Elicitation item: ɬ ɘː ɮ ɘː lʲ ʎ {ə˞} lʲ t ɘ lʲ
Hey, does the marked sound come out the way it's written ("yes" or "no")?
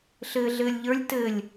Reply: yes